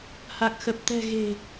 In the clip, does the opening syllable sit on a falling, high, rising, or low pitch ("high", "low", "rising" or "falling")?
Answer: low